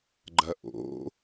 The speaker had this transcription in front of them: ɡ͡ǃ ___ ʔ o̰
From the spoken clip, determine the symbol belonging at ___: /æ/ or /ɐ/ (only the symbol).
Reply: ɐ